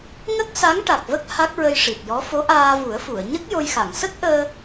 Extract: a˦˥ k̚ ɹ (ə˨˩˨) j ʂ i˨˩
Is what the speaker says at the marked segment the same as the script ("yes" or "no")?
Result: no